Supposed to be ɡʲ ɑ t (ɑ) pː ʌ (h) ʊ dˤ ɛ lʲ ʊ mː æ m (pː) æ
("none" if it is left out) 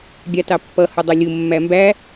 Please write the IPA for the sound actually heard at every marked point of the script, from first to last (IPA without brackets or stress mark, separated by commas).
ɑ, h, b